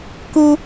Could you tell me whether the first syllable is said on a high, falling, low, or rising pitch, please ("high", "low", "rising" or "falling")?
high